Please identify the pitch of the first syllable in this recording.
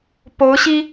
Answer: rising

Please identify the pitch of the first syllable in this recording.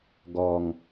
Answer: low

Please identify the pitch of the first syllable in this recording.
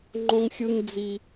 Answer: high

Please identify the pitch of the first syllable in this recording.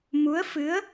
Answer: rising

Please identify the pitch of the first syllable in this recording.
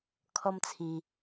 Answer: high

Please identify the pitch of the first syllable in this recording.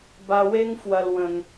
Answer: low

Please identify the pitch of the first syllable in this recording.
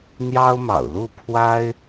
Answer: high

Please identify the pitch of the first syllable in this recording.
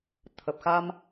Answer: low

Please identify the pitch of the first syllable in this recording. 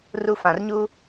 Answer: high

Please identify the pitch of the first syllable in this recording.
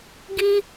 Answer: high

